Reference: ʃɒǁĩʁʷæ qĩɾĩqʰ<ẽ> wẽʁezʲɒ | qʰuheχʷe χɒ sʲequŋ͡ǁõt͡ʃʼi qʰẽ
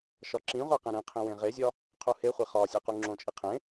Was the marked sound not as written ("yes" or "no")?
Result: yes